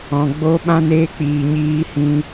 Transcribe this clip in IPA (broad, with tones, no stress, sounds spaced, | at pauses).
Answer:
ɔ̃˨ ɡ͡b o˦ ɓ ã˧ n eː˧ k͡p iː˨ ɲ iː˧ h ĩ˧